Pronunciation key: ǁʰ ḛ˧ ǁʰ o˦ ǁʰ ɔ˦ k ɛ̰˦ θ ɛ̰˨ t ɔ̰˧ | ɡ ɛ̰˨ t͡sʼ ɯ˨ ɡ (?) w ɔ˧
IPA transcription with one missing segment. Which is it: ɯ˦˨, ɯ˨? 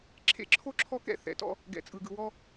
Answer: ɯ˨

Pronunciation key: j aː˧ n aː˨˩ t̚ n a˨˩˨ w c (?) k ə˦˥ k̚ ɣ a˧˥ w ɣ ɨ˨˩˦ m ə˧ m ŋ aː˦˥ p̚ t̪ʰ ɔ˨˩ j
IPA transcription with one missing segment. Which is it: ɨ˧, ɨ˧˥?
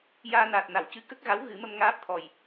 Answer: ɨ˧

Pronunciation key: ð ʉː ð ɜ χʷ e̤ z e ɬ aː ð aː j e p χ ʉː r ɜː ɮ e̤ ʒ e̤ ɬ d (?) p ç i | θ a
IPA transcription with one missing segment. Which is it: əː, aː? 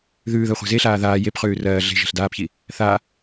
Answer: aː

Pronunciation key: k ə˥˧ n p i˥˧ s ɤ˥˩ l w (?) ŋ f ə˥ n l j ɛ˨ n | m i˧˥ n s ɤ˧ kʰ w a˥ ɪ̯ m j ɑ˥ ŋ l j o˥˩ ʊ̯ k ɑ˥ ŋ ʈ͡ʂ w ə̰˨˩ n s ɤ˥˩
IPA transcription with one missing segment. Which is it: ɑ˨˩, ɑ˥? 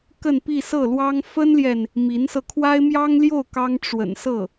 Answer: ɑ˥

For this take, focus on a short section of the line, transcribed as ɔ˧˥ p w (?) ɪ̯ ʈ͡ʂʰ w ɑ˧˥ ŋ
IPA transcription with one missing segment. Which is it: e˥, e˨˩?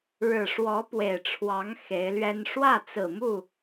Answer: e˨˩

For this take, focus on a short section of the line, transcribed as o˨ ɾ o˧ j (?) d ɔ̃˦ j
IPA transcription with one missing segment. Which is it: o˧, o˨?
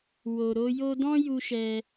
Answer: o˧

